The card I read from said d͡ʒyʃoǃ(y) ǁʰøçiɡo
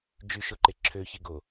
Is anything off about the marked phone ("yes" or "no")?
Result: yes